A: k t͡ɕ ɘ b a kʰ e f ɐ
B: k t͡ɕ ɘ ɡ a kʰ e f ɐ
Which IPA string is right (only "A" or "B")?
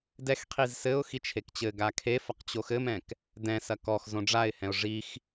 B